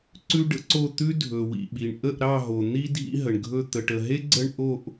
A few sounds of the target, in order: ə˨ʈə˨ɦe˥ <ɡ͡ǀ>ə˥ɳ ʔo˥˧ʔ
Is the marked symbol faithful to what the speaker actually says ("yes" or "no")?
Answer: yes